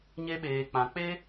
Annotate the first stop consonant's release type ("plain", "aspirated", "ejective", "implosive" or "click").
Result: implosive